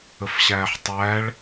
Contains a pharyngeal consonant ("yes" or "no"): yes